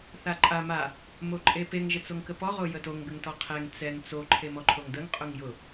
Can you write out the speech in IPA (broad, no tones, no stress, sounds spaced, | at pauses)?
θ a ǃʼ a m a | m o ǃʼ e p e ŋ ʒ ə t͡s o ŋ k ə p ɔ ʁ o j ə t o ŋ ɡ ə ŋ t ɔ qʰ ɛ ŋ t͡s ɛ ŋ t͡s o ǃʰ e m ɔ ǃʰ o ŋ d ə ŋ qʼ ʊ ŋ j ʊ